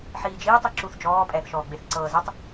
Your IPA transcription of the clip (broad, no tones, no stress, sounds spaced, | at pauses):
ħ iː d͡ʒ iː tˤ i ǁ u θ d͡ʒ ɔː pʼ ɛː θ ʃ ɔː ɡ͡b e θ ǀ ɤː z e tˤ